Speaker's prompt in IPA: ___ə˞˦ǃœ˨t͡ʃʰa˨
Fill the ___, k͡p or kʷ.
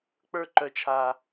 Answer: k͡p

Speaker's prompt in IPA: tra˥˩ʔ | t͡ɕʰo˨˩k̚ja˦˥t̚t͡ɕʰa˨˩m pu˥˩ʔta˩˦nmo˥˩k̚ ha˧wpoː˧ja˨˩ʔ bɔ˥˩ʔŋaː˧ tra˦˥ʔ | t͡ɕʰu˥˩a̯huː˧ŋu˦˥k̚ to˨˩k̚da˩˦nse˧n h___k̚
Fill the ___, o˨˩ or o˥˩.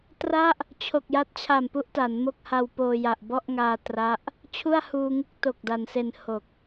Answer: o˨˩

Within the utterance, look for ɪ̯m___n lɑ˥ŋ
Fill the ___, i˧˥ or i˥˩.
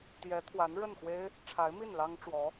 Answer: i˥˩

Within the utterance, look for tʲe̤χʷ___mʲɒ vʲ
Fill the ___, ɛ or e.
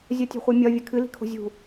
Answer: ɛ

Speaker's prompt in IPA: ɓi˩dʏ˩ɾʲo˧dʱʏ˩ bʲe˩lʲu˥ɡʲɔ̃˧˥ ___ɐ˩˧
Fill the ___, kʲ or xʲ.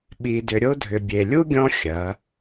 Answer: xʲ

